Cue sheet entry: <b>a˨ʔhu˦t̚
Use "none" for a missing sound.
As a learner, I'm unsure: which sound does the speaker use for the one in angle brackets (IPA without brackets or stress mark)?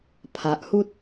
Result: pʰ